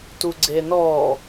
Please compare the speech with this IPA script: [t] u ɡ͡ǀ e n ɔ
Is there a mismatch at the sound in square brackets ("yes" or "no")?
no